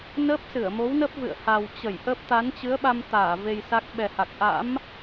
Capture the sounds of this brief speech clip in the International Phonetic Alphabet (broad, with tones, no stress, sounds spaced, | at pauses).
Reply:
n əː˦˥ p̚ s ɨ˧˩ ə̯ m o˨˦ w n ə˦˥ p̚ v ɨ̰˧˨ ə̯ h a˨˩ w t͡ɕ ə˧˩ j ʔ ə˦˥ p̚ t̪ a˨˦ n t͡ɕ ɨ˨˦ ə̯ ɓ a˧ m t̪ aː˧˩ v e˧ j s a˦˥ k̚ ɓ ɛ˨˩ h a˨˩ k̚ ʔ a̰˧˥ m